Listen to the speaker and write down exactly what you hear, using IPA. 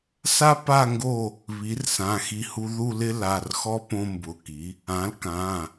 s a˦ p a˦˨ ŋ ɡ o˦˨ | β i˩˥ r s ã˩˧˩ x i˦˨ h u˦ ð u˦˨ l ɪ˦ l a˩˧˩ r x ɔ˦ p õ˦ m b ʊ˩˧˩ k i˩˥ | ã˩˥ l k ã˩˧˩

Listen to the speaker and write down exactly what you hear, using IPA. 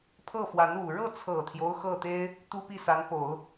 pʰ ɤ˥˩ f w a˧˥ n u˨˩ ɻ ɤ˥˩ t͡sʰ ɤ˨˩ t̪ʰ j o˦ ʊ̯ x ɤ˥˩ t̪ e˥ ɪ̯ | t̪ u˥ p i˥˩ s a˧˥ n p o˨˩˦ ʊ̯

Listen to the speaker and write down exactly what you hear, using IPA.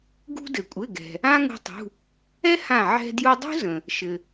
ɡ ṳ˧ d ɘ˩ kʷʼ ɘ˩˧˩ ɡ ɛ̤˩ | ã˥ ŋ ṳ˧ tˤ ṳ˩˧˩ | ɛ˥ h ã˧˩ ʕ ɛ̤˧ d j u˧ dˤ ṳ˥ z ə̃˩ | ʃ ɘ˩

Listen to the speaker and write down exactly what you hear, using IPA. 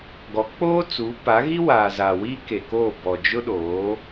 ɡ ɔ˨˦ k͡p oː˦ t͡s uː˨˦ p a˨˦ ɣ i˦ w aː˨ z aː˨ w i˦ k e˨ k oː˦˨ b ɔ˨ d͡ʒ ʊ˦ ɗ oː˨˦

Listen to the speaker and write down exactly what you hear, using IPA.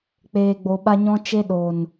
k͡p eː˨ ɡ͡b o˨ ɓ a˧ ɲ ɔ̃˧ t͡ʃ e˧ ɗ oː˨ n

